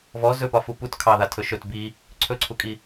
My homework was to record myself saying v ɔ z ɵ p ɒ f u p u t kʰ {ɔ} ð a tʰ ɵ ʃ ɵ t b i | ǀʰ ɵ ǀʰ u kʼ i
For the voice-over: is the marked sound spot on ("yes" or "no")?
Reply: no